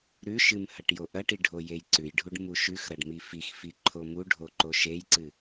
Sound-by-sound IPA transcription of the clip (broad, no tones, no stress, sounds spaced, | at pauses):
ɾ ʉ ʃ ɨ m h ɐ ʈ j o ʔ ɐ ʈ i ɖʱ o j e j ǀ ʉ j ɖʱ u ɖ m u ʃ ʉ x ɾ ɐ ɖ m i f i x f i ǃʰ o m u ɖʱ o ǃ o ʃ e j ǀ ɨ